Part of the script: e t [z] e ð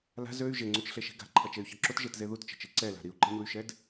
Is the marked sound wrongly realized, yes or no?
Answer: no